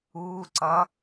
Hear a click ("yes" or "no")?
yes